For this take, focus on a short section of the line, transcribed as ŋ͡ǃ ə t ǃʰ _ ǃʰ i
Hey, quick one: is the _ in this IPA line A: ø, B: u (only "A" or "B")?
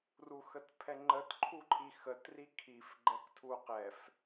B